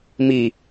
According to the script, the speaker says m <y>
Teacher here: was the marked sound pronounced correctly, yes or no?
no